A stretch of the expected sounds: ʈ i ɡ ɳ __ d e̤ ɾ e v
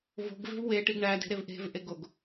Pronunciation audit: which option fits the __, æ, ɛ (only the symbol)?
æ